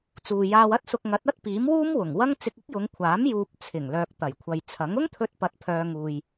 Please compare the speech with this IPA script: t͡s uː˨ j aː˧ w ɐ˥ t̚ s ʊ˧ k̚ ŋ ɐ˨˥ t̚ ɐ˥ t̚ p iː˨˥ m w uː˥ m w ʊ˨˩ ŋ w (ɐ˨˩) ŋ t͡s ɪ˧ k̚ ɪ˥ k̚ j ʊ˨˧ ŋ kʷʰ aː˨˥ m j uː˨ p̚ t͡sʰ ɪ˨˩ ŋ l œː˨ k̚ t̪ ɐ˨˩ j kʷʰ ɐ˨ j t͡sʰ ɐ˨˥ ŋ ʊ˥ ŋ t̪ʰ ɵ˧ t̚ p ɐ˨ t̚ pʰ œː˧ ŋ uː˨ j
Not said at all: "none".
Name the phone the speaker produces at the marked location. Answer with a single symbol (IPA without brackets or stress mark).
ɐ˥